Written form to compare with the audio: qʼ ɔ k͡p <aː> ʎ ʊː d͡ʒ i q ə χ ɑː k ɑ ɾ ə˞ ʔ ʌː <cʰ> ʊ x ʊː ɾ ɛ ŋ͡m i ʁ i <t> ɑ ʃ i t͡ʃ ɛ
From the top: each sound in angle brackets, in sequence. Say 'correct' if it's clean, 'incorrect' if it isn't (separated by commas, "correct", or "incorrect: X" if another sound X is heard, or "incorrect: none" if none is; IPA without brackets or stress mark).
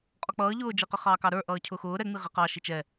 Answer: incorrect: ʌː, correct, incorrect: q